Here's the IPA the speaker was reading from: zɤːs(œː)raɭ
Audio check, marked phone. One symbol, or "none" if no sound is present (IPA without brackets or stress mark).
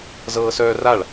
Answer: œː